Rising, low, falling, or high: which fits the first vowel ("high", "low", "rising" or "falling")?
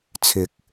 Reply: rising